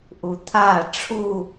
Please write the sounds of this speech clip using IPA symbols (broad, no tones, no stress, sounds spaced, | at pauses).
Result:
ʔ u t̪ʰ a ʈ͡ʂʰ u